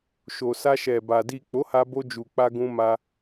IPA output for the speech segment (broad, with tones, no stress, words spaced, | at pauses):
ʃo˨sa˧ʃɛ˨ba˨ di˨ k͡po˨˦ha˧ bo˧d͡ʒu˨ k͡pa˧ɡũ˧ ma˧